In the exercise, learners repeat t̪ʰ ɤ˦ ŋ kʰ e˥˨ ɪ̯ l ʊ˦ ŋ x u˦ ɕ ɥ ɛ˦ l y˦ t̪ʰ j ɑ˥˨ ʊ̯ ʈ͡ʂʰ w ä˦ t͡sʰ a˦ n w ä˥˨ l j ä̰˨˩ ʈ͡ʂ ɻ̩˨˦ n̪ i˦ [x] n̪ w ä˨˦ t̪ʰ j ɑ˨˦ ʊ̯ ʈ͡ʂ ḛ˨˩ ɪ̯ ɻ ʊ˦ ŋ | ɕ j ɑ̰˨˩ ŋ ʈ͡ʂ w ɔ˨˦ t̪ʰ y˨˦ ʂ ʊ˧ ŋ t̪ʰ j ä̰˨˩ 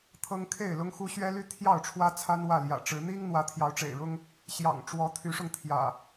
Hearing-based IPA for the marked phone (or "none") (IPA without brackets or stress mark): ŋ